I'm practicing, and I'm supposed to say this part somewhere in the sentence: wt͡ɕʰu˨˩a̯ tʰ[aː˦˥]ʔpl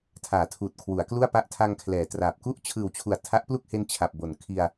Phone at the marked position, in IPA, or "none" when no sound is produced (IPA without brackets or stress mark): a˦˥